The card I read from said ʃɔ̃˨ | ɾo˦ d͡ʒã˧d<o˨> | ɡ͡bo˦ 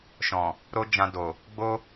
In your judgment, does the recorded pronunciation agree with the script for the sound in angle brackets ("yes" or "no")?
yes